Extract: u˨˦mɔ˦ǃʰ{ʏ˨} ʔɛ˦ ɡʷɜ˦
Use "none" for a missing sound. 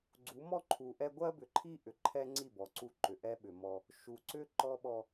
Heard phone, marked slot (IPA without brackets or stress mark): u˨